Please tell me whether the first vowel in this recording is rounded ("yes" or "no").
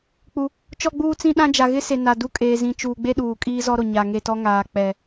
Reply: yes